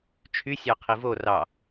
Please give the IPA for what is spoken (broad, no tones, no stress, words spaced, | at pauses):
t͡ʃʰy sʲɑqʰivo rɑ